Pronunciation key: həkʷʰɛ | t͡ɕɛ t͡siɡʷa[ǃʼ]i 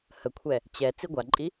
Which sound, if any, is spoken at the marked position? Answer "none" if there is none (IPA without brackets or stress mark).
ǃʼ